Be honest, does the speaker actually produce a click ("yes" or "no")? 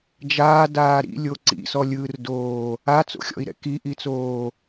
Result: yes